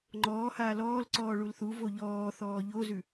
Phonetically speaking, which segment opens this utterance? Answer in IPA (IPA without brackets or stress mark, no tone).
ŋ͡ǃ